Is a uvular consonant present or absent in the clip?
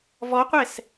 present